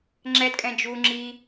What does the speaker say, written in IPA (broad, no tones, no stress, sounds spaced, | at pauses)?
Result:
ŋ͡ǁ ɛ d kʼ ɛ̃ d͡ʒ u ŋ͡ǁ i